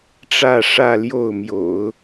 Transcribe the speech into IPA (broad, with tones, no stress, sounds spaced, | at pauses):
ʈ͡ʂ ä˥˧ ʂ ä˥˧ l j o˥˩ ʊ̯ m j o̰˨˩˦ ʊ̯